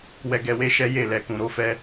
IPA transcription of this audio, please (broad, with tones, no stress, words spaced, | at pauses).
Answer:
wɛ˧ɡɛ˧we˦ ʃɛ˦je˦˨ lɛ˨kũ˨ ɾo˧fɛ˧